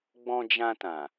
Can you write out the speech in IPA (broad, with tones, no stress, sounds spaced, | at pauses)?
ɡ͡b ɔ̃˧ d͡ʒ ã˧ t ã˨